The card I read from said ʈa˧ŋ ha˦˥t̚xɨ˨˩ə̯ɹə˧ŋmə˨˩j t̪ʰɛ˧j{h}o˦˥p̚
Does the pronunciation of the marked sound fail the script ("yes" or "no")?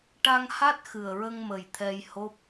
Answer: no